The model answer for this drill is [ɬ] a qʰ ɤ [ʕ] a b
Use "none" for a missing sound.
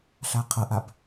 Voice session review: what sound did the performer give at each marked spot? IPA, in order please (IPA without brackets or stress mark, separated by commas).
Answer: ɬ, ʔ